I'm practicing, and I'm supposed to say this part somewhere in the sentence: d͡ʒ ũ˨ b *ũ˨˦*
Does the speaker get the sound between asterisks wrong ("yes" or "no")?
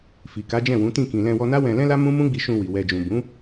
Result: no